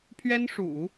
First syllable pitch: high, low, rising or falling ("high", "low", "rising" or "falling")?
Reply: high